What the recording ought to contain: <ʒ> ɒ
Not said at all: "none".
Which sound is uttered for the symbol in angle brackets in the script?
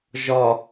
ʒ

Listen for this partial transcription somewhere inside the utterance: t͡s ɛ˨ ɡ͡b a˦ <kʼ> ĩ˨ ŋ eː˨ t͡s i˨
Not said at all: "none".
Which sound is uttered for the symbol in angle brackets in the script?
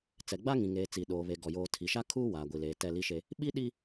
ŋ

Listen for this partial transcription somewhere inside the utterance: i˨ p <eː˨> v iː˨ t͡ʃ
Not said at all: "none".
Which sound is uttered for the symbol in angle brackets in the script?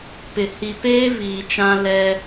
eː˦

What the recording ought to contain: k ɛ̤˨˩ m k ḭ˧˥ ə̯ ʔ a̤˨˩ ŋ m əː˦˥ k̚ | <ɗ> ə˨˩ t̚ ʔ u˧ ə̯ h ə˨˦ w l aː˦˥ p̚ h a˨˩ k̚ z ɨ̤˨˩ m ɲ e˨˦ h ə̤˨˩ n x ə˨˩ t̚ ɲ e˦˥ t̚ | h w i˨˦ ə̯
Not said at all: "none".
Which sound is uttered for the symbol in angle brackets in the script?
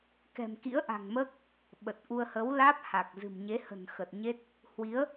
ɓ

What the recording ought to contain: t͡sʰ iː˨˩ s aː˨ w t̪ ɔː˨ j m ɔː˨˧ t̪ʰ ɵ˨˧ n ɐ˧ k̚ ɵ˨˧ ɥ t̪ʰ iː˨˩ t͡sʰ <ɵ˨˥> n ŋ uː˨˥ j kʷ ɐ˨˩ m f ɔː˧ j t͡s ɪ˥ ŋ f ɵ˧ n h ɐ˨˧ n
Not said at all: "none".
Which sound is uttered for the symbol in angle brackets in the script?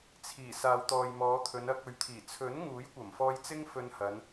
ɵ˨˥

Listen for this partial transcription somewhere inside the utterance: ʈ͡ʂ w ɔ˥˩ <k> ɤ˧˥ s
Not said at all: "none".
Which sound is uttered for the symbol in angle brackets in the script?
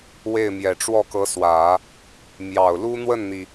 k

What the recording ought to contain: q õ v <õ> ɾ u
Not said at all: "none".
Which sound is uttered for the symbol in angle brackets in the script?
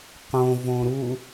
õ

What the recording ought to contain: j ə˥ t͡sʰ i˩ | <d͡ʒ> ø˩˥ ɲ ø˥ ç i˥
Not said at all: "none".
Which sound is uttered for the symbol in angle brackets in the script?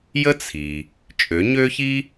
t͡ʃʼ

